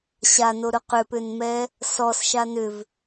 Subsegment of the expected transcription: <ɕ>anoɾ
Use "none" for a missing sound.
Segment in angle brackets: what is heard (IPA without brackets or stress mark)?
ɕ